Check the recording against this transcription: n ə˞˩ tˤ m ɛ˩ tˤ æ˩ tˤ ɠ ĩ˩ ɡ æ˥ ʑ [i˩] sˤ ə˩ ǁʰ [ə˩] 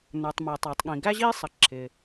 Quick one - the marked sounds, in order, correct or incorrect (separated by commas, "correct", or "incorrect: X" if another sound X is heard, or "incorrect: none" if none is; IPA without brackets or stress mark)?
incorrect: i˥, incorrect: ɪ˩